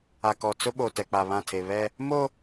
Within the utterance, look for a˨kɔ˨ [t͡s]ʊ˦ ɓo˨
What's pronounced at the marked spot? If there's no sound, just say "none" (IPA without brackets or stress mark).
t͡s